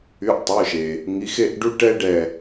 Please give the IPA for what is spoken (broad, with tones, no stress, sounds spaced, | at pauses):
y˩˧˩ ʔ tˤ œ˩˧˩ ʃ e˩ | ŋ i˩˧˩ x e˥˨ ʔ ɖ u˦ ʈ ɛ˦ ɖ ɛ˧˩